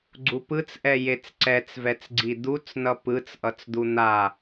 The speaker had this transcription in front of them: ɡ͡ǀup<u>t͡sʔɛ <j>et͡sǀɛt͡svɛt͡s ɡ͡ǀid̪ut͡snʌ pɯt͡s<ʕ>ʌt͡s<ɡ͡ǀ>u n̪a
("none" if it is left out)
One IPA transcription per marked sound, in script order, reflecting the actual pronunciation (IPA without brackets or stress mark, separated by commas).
ɯ, j, ʔ, d̪